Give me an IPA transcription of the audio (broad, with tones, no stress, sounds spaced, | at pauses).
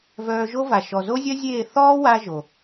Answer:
v œː˧ ʒ o˦ v a˨ ʃ ɔ˨ z o˦ zʲ œ˦ zʲ eː˦˨ θ ɔː˦ w a˧ ʒ o˨